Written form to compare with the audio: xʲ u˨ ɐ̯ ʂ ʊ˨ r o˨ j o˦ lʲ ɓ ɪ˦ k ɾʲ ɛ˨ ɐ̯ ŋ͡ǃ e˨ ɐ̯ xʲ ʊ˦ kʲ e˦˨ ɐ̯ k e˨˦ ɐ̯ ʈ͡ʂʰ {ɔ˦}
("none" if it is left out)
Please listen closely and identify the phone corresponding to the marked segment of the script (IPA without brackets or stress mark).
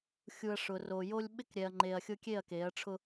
ʊ˦